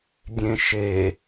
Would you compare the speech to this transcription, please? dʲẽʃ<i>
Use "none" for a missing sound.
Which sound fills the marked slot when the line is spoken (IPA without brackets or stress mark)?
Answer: e